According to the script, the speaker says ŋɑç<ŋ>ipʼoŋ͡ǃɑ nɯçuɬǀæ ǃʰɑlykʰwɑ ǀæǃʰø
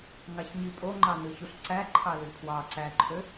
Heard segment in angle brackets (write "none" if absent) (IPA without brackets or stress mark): ɲ